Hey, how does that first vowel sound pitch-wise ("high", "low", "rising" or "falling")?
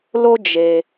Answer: high